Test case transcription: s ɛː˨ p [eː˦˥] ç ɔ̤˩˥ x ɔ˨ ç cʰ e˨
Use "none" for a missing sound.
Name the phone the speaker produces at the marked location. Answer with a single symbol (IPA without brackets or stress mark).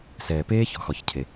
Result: eː˦˥